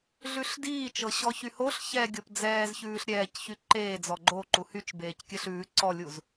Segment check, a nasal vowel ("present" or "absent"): absent